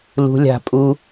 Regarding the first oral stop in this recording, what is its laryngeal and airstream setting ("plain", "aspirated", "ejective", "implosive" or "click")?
ejective